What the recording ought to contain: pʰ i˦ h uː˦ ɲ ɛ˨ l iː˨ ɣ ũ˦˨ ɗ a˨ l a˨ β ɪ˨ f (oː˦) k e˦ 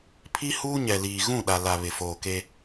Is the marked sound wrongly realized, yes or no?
yes